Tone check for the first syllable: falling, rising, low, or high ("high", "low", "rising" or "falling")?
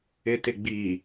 low